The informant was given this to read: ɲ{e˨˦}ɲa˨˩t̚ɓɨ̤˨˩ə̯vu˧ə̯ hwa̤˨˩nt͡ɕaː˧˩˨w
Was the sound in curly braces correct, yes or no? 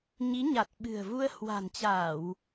no